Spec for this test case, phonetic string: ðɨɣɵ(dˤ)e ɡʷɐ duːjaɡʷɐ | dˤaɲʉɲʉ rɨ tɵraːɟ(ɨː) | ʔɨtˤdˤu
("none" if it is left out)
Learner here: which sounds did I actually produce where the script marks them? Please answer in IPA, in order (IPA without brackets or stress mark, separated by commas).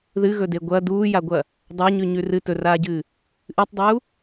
d, ɨː